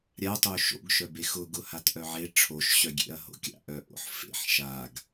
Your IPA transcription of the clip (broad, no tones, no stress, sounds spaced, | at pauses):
ɾʲ a tˤ o ʃ o̰ ɡ ʃ œ b e x ʊ ɡ ʊ h a t ʔ œ ʕ e ʈ͡ʂʰ o ʃ ɕ œ ɡʲ ḛ ɐ̯ ɦ o̰ kʲ a̰ ʔ œ ʔ o̰ ħ f ḛ ħ ʃ a ɡ